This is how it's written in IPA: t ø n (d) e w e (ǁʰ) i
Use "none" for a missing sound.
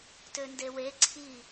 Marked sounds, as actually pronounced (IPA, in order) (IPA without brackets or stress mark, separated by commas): d, ǀʰ